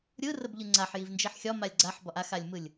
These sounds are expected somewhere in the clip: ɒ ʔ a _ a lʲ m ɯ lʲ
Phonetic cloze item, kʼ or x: x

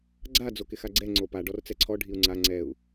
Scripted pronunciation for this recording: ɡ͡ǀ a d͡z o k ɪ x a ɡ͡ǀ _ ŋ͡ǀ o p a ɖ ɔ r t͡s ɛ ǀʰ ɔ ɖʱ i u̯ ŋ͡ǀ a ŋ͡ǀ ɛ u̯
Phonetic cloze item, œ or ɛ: ɛ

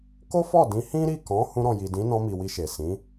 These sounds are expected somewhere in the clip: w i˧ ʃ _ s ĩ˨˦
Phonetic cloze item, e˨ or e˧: e˨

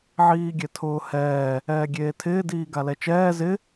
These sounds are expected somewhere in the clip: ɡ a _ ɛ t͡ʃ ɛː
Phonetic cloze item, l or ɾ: l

